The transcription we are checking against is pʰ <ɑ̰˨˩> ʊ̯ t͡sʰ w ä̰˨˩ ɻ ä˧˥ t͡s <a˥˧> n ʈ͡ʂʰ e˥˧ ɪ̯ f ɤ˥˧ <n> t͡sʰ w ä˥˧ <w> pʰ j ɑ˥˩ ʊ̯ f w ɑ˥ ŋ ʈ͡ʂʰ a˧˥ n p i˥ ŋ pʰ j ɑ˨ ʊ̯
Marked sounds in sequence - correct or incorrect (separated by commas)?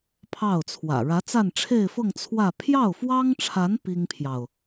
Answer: incorrect, correct, incorrect, incorrect